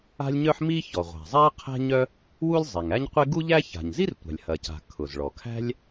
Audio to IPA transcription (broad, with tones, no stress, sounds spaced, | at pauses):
a̤˥ lʲ ɲ œ˥ ħ m i˥ ç ɔ˩ ʁʷ a̤˩ zˤ a˥ qʰ æ̤˥ ɲ œ˥ | w u˥ lʲ zˤ i˩ ŋ æ˥ ɲ qʷ e˥ ɡ u˥ ʎ æ˥ ç a̤˩ ɲ z i˥ r tʷ a̤˩ lʲ h ɐ˩ c a̤˩ kʰ ʊ˩ z ɭ ɔ˩ kʰ æ̤˥ lʲ